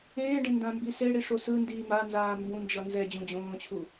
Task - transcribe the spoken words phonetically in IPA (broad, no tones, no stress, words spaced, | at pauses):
ẽːɖẽ ndãmbiseɽi ʂosɯndiː manzaː mbũnd͡ʒʌ nzɛ d͡ʑũd͡ʑõːt͡ɕʰu